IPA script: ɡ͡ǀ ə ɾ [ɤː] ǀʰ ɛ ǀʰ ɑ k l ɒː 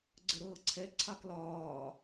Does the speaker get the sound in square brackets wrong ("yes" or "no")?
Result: no